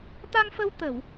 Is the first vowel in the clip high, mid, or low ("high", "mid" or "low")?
low